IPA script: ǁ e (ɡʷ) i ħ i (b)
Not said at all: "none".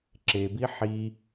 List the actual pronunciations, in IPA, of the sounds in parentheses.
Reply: b, none

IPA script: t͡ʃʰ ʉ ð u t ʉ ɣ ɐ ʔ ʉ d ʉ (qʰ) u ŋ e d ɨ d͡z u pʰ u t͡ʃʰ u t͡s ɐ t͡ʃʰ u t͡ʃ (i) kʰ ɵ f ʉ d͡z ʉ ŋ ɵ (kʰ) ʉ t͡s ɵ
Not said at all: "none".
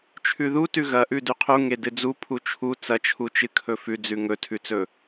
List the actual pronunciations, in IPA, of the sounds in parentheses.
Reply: qʰ, ɨ, tʰ

